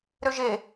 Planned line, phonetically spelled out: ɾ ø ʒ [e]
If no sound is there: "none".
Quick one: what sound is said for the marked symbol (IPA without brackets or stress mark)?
e